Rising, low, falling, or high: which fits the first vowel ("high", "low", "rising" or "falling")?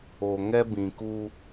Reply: low